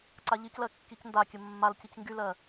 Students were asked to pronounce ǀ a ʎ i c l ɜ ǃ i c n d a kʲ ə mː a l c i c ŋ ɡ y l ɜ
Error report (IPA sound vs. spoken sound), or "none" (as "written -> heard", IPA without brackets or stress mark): ǃ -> kː